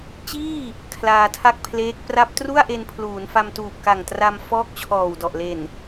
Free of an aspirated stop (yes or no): no